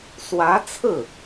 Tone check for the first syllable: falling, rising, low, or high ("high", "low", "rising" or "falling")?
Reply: rising